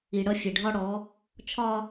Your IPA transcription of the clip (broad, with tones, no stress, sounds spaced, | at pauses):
i˨ ɽ ʌ˦ fʲ e˨ ɖʱ ɒ˦ ɽ ɔ˨˦ | t͡ʃʰ ɒ˦